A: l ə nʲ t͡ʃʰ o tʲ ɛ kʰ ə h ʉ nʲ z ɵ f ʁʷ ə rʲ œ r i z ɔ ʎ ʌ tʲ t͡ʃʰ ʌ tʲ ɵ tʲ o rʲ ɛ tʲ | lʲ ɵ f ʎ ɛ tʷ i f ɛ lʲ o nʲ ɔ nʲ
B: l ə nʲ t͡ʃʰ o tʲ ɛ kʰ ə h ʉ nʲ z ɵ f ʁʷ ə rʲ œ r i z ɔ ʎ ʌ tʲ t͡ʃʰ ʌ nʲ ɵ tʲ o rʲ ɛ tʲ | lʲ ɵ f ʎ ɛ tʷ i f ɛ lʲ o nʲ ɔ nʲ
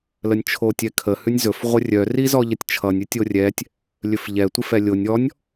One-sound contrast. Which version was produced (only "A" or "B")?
B